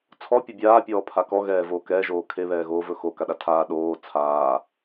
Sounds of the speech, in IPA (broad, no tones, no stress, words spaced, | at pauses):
t͡sʰɔpʲɵ bʲaːpʲɔː pʰakɔɣɛː voːkɛːʒoː kʰeβɛːɣoːvɵ xo kaɗatʰaː ɗoː t͡sʰaː